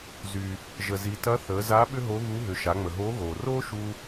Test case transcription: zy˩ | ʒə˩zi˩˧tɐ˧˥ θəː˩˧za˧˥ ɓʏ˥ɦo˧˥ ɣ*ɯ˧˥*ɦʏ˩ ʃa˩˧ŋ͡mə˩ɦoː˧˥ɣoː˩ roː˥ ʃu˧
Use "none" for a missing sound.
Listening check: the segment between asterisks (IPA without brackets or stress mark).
u˧˥